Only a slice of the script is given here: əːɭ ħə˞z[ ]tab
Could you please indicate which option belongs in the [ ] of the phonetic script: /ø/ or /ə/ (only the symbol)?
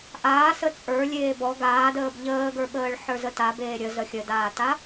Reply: ə